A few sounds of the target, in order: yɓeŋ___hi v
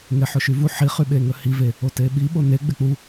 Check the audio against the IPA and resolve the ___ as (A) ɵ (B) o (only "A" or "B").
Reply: A